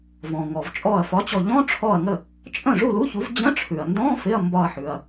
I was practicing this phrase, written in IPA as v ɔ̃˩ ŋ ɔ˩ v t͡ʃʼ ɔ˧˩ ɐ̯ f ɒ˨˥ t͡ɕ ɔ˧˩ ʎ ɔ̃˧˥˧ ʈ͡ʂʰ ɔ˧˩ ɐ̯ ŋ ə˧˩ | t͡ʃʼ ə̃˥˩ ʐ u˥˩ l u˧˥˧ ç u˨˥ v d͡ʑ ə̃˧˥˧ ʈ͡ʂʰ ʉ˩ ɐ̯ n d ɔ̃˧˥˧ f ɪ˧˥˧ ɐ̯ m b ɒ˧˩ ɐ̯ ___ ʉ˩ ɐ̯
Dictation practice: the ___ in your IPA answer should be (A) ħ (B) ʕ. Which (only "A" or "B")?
A